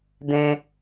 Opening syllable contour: high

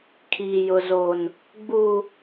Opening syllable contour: low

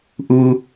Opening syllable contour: low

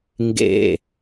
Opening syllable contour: falling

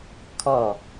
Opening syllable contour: falling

